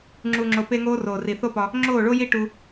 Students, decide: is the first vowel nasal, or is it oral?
oral